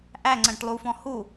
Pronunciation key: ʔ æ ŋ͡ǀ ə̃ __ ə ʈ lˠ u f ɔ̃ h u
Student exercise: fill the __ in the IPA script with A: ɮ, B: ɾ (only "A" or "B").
B